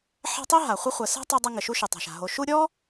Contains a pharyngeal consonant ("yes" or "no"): yes